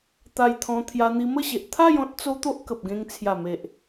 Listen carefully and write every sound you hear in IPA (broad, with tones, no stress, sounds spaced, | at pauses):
t̪ a˧ j t̪ʰ ɔ̃˧ t̪ʰ j a˧ n̪ i˧ m ə˥˧ ɕ e˨ ʔ t̪ʰ a˥˧ j ɔ̃˦ t̚ t͡s o˦ t̪ o˦ ʔ k ə˨ p̚ ɡ ẽ˧ ŋ t͡sʰ j a˨˩ m e˨ ʔ